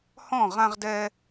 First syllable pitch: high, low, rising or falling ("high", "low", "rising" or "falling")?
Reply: falling